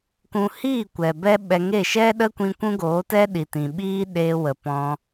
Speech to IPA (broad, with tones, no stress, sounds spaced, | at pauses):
k ũ˧ h iː˦˨ kʷ ɛ˨ b ɛ˦ ɓ ɛ˧ ŋ e˦˨ ʃ ɛ˦ ɗ ə˦ kʷ ĩ˧ kʷ ũ˦ ɡ oː˨˦ t ɛ˦ ɗ i˨ t ĩ˨ ɓ iː˦ ɗ eː˧ w ə˨ p ɔ̃˧